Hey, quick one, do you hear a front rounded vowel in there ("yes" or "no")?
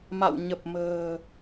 no